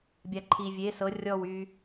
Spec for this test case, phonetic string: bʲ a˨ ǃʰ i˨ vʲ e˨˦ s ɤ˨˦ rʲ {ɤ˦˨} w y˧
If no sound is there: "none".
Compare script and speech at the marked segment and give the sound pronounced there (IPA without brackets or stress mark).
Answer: ɔ˦˨